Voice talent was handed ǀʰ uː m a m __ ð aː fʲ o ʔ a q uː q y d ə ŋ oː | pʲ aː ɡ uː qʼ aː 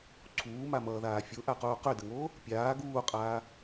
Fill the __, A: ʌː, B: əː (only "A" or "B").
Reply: A